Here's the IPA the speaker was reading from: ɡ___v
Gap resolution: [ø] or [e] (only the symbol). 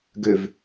ø